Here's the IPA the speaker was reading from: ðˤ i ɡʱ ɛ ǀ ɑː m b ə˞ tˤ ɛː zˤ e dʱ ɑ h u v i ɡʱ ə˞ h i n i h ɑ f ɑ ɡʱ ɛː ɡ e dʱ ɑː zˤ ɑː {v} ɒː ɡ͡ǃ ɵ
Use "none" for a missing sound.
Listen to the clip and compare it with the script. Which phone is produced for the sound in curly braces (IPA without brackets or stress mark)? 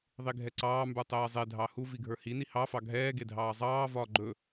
v